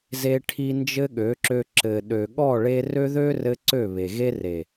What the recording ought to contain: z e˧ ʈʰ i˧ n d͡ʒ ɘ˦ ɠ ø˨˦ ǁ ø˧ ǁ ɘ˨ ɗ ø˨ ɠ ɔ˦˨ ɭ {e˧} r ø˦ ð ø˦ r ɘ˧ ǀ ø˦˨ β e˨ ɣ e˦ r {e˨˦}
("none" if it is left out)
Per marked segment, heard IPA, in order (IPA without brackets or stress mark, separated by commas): e˧, e˨